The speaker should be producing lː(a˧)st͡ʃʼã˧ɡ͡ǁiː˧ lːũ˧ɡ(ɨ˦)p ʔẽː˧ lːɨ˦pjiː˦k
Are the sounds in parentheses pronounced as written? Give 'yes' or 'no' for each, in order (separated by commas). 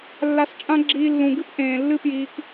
yes, yes